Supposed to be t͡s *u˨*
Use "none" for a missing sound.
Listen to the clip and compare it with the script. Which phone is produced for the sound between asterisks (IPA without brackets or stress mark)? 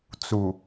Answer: u˨